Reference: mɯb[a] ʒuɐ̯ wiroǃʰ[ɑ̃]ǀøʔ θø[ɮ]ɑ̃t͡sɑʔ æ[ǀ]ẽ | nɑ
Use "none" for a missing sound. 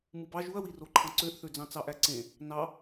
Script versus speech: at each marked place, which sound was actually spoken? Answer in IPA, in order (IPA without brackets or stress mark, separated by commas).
ɑ, ɑ̃, d͡z, ǀ